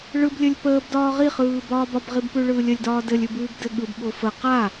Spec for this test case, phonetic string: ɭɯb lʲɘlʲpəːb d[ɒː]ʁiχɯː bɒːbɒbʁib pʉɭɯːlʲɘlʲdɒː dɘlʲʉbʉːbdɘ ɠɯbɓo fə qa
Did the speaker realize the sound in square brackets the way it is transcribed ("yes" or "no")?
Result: yes